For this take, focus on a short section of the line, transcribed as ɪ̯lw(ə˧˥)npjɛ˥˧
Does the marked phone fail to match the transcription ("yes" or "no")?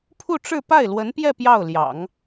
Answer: no